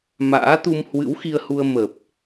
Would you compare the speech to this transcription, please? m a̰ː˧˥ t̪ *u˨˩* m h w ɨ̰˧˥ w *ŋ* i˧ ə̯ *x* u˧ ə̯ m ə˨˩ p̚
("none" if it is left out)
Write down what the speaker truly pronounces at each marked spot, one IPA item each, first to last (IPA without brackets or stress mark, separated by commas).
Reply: u˧, x, h